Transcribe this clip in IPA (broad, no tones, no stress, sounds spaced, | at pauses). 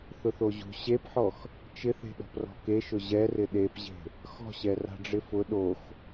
θ ʊ θ o ʑ ṳ ɕ e p ħ ɔ x | t͡ʃ ɪ θ e̤ ɗ ɔ̤ p r ɔ̤ k e ʃ ʊ ʑ ɛ r ɪ ɗ e p ʑ e̤ | x ɔ̤ ɕ ɛ r a̤ ɖ͡ʐ ɪ f ʊ ɗ o x